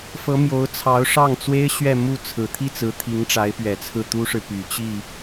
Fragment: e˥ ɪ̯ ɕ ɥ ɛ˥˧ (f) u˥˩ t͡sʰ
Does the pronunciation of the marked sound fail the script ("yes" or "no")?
yes